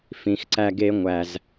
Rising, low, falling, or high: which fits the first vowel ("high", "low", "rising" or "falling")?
low